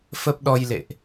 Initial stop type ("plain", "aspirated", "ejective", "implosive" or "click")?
plain